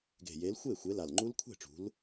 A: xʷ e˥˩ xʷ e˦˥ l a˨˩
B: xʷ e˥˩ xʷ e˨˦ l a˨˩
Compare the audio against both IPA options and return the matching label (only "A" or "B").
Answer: B